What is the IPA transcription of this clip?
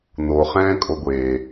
noχɛ̃ːkʼo ɡʷe

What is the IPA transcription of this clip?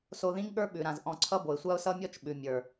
so˧ðĩ˦ŋɠə˞˦ ɓʉ˨ɾã˨zʔɔ̃˧ǀʰʌ˦ bo˨ɪ̯sʷa˦ʊ̯sʌ˦ mʲɔ˦t͡ʃɓʉ˨ mʲə˞˨

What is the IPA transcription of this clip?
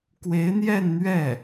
kwe˧˥ɪ̯n̪jɛ˥˧nn̪ɥɛ˥˩

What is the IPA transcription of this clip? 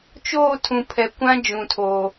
t͡ʃoː˦˨tʰũ˨ pʰɛ˨kʷã˦ d͡ʒũ˨tʰoː˨

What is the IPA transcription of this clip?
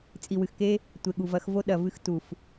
t͡sʼi˨wɨ˨xke˦ | tʷe˨ɠu˨vɐ˨˦x vo˦ ɗɐ˨vɨ˧x tu˨f

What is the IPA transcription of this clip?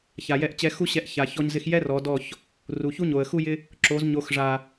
ça˨jɛ˦˨ʔ t͡ɕɛ˧ xu˦ɕɛ˧ʔ ça˨ çɔ˧ɲzɪ˧xjɛ˦ rɔ˨˦dɔ˦˨ç | ru˨çu˦ɲo˨ə̯xu˦ jɪ˦ | ǁo˨˦z ɲo˨xʐa˨

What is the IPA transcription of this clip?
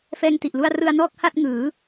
fɛː˧ŋti˨˩ʔlu˧a̯ rɯ˧a̯nɔː˥˩k̚ ha˥˩t̚ŋɯː˩˦

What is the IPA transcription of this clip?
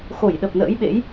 xo˧˩jɗə˨˩p̚nə̰ː˧˥jɓḛ˧˥j

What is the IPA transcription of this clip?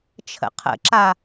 t͡ʃʰə̰qʰə̰ǁa

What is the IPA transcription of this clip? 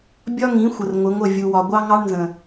bʲɒ˦ŋĩ˨˦ xʷə˨rŋʷɪ˨˦ŋʷə˦˨ vʲu˨wɒ˨ ɡʷɑ˦ ŋɑ˦ɳnzə̃˨

